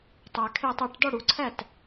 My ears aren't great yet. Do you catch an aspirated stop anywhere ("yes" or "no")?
yes